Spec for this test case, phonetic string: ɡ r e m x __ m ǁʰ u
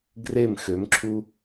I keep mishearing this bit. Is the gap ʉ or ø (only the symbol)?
ø